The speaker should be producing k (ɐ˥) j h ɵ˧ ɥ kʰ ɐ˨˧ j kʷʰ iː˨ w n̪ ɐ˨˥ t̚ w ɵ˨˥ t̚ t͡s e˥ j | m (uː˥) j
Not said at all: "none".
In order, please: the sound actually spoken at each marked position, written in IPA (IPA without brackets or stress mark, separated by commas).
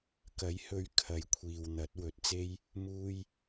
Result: ɐ˨˥, uː˥